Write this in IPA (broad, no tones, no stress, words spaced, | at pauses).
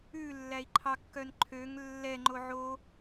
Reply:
ʉ lːæi̯ǃʰɑkːœn ǃʰøŋ lːɛŋ͡ǃo ʕo